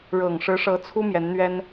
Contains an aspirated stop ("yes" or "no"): yes